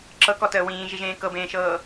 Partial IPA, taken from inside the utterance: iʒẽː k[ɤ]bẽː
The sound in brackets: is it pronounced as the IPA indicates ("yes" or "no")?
yes